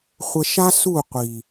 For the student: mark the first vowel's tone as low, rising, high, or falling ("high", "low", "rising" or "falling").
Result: low